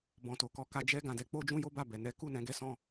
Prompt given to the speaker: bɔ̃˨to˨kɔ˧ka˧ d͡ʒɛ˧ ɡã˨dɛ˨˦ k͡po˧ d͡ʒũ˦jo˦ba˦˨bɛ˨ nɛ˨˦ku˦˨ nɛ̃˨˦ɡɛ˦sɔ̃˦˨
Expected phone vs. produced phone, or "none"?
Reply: none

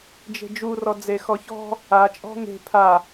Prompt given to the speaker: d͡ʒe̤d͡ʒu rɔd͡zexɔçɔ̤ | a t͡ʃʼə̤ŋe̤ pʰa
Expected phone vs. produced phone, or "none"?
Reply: ə̤ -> ɔ̤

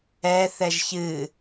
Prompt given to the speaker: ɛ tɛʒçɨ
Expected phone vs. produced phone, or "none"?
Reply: t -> θ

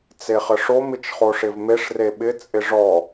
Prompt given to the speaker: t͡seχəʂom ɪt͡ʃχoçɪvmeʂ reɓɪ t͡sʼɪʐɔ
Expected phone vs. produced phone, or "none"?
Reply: ç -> ʂ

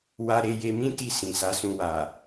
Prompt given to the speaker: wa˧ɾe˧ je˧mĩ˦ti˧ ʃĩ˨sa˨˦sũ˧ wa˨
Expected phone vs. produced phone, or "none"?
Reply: ʃ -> s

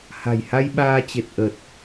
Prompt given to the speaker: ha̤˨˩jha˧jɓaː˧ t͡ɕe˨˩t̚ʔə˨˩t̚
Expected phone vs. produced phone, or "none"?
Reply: none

